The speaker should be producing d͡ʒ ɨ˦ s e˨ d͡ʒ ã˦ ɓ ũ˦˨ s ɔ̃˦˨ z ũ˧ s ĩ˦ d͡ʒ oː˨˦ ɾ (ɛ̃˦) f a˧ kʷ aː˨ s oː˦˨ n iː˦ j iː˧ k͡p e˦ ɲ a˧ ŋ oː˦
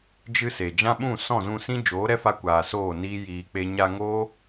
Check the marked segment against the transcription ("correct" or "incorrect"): incorrect